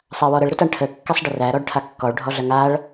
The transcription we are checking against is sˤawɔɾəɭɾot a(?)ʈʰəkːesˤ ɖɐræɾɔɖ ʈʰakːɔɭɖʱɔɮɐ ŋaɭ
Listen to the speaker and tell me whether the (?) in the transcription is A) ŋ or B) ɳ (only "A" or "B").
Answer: B